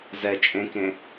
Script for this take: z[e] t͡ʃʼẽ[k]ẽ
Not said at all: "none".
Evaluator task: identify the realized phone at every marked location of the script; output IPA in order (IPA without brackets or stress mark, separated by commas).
ɛ, k